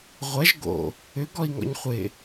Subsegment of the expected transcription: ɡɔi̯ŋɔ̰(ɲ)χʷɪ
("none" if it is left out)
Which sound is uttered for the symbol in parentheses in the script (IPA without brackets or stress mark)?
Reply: ɲ